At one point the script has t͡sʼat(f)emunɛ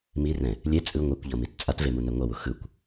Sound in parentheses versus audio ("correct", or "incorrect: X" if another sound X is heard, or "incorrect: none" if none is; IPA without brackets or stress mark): incorrect: v